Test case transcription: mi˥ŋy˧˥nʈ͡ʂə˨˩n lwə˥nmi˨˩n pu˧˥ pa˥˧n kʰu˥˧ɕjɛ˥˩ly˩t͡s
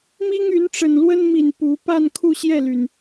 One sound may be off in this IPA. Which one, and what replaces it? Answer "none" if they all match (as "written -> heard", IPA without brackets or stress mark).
t͡s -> n